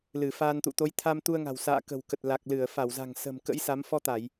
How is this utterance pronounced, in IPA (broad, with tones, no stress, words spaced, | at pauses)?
lɨ˧˩faː˧nt̪ṵ˧˨ t̪o˨˦jt̪ʰa˧mt̪u˧ə̯ŋa̤˨˩w sa̰ː˧˨kə̤˨˩wkə˨˩t̚la˨˩k̚ lɨ˧˩ə̯fa˧˩wza̤˨˩ŋ sə̤˨˩mkə̰˧˥jsa˨˦m fɔ˧t̪a˧˩˨j